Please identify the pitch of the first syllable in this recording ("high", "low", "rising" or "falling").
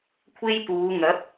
high